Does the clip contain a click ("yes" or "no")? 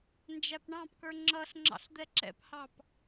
yes